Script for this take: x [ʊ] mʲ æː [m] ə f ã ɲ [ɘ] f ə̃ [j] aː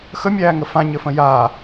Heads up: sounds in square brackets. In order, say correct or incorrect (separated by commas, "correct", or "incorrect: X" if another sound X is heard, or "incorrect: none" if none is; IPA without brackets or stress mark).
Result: incorrect: ə, incorrect: ŋ, correct, correct